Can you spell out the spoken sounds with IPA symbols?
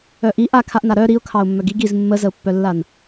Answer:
œ ʔ i ʔ a kʰ a ʔ n a ɾ œ ɾ i ʊ̯ kʰ ɑ ʊ̯ mː œ ɡ i ɡ i z mː ə z ə ʊ̯ pː œ lː a n

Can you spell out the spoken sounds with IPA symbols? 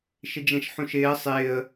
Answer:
ʃ ɪ d͡ʒ ɛ̃ ʃ ħ ũ ʃ ɪː ə̯ sˤ ɪː ə̯

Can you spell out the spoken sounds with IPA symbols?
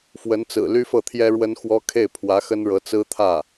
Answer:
f w ə˧˥ n t͡s ɹ̩˨˩ l y˥ f ɤ˥˩ t̪ʰ j ɛ˥ ɻ w ə˥ n x w ɔ˥ kʰ e˥˩ ɪ̯ pʰ w ä˧˥ x ə˥ n ɻ ɤ˧˥ t͡s ɹ̩˥ t̪ʰ ä˥˩

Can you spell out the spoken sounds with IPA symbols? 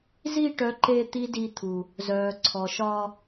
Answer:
z i˦˨ ʈ œ˨˦ ǃ eː˧ t̪ i˦ d i˧ t̪ʰ u˨ | z œː˨ ǀʰ ɔ˨ ʃ ɒː˧

